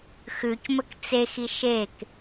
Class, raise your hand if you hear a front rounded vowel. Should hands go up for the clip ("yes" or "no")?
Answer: no